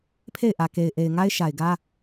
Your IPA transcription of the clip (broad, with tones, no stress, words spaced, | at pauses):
pʰe˦˨ɪ̯ʔä˨ ke˨ɪ̯ʔe˨ɪ̯ŋa˦ɪ̯ ʃa˨ɪ̯ɡä˦